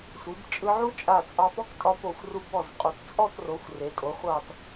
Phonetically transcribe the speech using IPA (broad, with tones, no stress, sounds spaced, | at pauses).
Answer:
sʷ i˩˧ b t͡ʃʼ ɯ˧ ʕ u˥ t͡ʃʼ a˧˩ t͡sʼ ɑ˧ p ɔ˥ k tʼ ɒ˧ p o˧˩ xʷ r u˧ b ɔ˧˩ z qʼ o˩˧ t t͡sʼ ɔ˥˧ t r o˩˧ xʷ r e˩˧ tʼ o˩˧ χʷ ɑ˧˩ t